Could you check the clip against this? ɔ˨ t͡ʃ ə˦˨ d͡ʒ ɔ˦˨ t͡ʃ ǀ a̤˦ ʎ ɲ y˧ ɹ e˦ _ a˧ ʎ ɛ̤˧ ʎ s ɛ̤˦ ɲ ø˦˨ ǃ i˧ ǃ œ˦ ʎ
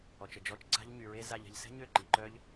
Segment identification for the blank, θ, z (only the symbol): z